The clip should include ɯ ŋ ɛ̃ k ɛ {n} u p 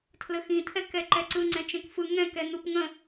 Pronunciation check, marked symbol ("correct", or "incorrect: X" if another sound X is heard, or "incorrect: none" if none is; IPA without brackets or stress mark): correct